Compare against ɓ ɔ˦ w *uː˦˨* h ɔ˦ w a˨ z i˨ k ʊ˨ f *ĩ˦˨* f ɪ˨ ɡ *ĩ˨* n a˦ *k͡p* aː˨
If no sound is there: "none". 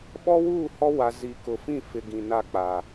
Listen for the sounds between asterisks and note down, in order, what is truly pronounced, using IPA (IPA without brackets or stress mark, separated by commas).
uː˦˨, ĩ˦˨, ĩ˨, k͡p